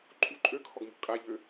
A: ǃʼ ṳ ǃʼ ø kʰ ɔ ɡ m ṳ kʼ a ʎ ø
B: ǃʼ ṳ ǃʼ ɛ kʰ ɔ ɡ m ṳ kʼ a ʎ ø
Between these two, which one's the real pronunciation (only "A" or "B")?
A